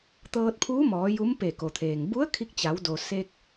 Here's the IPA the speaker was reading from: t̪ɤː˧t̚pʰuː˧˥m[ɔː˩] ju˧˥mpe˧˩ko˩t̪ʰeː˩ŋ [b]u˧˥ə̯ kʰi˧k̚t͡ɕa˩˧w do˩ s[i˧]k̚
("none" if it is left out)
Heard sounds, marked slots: ɔː˩˧, b, e˧

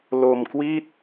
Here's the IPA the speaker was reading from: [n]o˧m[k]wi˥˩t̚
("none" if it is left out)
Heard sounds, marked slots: l, k

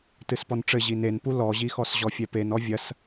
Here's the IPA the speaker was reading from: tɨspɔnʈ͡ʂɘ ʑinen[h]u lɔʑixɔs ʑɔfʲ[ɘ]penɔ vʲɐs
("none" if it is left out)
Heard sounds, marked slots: p, ɛ

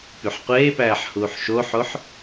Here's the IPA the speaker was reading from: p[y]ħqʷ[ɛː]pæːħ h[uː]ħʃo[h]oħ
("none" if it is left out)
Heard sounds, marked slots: y, eː, uː, ħ

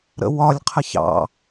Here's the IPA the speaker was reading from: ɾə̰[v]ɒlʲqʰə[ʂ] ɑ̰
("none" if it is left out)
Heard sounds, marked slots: w, ç

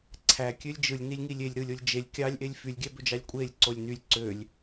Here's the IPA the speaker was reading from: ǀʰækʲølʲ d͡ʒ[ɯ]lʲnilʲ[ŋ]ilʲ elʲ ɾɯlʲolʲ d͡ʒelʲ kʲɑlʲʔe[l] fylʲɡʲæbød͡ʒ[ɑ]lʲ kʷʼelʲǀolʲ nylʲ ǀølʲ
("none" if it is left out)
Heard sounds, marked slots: ɯ, ŋ, lʲ, ɑ

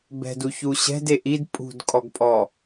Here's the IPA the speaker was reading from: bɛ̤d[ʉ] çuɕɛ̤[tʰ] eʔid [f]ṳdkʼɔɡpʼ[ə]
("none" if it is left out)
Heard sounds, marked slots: u, d, pʼ, ɔ

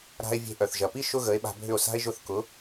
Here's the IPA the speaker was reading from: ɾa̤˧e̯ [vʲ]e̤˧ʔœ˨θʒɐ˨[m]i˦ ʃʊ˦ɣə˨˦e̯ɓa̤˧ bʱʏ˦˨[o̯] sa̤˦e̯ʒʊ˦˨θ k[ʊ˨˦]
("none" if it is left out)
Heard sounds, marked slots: vʲ, p, o̯, ʊ˨˦

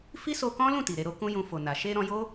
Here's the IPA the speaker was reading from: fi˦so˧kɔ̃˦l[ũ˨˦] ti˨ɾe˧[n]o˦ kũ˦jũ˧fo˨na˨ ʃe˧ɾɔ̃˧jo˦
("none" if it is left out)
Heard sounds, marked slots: ũ˦˨, ɾ

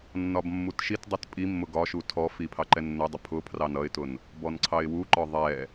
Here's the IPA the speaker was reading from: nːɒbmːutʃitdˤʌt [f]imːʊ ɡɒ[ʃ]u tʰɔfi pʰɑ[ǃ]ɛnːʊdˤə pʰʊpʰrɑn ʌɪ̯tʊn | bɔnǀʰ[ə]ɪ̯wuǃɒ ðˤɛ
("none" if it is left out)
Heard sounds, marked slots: pʼ, ʃ, ǃ, ɑ

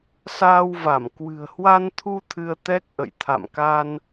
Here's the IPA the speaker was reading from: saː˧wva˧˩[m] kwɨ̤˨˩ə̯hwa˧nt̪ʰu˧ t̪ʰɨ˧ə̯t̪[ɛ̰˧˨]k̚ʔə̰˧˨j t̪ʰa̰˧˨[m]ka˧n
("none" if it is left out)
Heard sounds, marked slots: m, ɛ˦˥, m

